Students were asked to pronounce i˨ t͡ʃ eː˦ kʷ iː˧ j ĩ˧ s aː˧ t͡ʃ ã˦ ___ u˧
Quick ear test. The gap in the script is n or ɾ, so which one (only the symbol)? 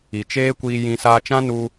n